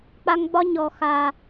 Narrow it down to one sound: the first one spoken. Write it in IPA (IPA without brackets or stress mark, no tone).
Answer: k͡p